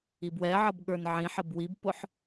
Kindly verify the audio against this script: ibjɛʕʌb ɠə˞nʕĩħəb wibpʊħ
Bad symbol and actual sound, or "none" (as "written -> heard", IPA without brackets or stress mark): j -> w